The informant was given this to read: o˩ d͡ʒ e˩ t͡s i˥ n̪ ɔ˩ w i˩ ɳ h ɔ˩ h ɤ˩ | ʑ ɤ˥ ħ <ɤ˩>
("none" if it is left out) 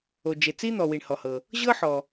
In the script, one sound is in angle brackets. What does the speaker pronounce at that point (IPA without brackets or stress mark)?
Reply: ɔ˩